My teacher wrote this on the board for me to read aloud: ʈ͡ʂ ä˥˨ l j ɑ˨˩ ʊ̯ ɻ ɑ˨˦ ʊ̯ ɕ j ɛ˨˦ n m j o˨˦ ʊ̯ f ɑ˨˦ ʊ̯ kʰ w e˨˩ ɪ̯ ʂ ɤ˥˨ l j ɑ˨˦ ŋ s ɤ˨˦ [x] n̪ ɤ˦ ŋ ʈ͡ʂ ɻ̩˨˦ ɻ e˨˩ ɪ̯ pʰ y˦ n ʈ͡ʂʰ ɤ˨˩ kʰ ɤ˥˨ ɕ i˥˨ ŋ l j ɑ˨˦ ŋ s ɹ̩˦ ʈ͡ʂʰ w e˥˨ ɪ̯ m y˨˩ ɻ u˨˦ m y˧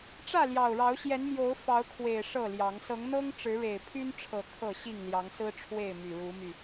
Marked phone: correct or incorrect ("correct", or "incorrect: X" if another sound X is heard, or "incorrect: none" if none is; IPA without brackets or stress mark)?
incorrect: ŋ